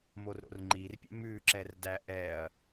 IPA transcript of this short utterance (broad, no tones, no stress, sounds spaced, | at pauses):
m o r ɾ o̰ r ŋ͡ǃ i r pʲ ɛ̰ m ʉ ǁ ɛ r d æ ʔ ɛ ɐ̯